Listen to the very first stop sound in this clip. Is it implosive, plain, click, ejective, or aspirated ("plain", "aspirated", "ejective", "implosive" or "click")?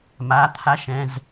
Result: aspirated